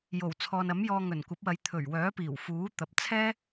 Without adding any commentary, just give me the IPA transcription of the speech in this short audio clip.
j o˨˩ w t͡sʰ ɔː˨ n ɐ˨˥ m j ɔː˧ ŋ ɵ˨˩ n kʷ ɐ˨˥ p̚ w ɐ˨˧ j t̪ʰ ɵ˨˩ ɥ w œː˨˥ p iː˨˩ w f uː˨˥ t̪ ɐ˨ p̚ t͡sʰ ɛː˥

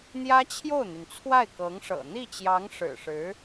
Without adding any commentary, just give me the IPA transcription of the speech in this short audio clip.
n̪ j ä˥ t͡ɕʰ j o˥˩ ʊ̯ n̪ y˩ n t͡sʰ w a˥˩ ɪ̯ k ɤ˧˥ ŋ ʂ ɤ̰˨˩ n̪ i˥˩ t͡ɕ j ɑ˧˥ ŋ ʂ ɻ̩˨˩ ʂ ɻ̩˧˥

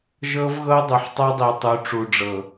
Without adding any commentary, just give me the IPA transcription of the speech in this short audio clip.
ʒ ɤ˦ v ɣ ɤ˦ dˤ u˨ ħ tˤ ɤ˦ dˤ i˨ tˤ u˨˦ ʈ͡ʂ u˨ ɖ͡ʐ ɤ˨

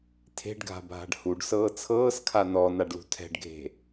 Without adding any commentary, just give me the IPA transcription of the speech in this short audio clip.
tʰ e̤ ɖ ɡʱ a̤ bʱ a̤ ɖ h u ɖ s ɤː t͡sʰ ɤː s kʰ a n ɔ n a ɖ l ṳ tʰ ɛ̤ ɖ ɡʱ e̤

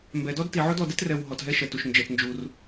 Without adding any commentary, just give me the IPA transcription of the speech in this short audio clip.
m b ɛ˩ d ɔ˥ d t i˩ ʕ o˥ d ɔ˩ d ɛ˥ t r ɛ˩ w ɦ ɔ˩ t ɦ ɛ˥ ʃ ɛ˩ t u˩ ʃ n d͡ʒ ɛ˩ t n d͡ʒ u˩ r

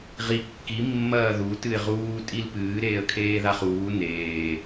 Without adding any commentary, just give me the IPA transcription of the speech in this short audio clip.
ʁ i kː i mː ɐː ð u t ɨ ɪ̯ ʁ uː tʼ i l p ɨː ɾ eː ə̯ kʰ eː ð a χ uː n eː

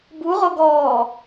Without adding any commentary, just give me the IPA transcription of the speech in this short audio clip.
b u ʁ o ɡ ɔː

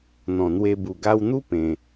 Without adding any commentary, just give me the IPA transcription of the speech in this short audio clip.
n̪ ɔ̃˨˩ n̪ w e˧ b u˨˩ ɡ a˧ w n̪ u˦ p ẽ˧

